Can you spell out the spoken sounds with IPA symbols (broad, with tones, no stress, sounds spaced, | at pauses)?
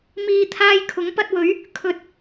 m iː˧ t̪ʰ aː˧ j kʰ ʊ˨˥ ŋ p ɐ˧ t̚ w ɵ˨˥ ɥ | kʰ ɵ˨˥ t̚